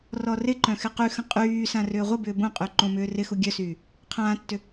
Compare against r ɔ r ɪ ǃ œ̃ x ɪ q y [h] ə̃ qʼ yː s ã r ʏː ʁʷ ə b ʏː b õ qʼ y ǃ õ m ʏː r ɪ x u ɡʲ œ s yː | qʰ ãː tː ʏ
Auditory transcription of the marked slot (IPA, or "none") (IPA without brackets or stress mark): x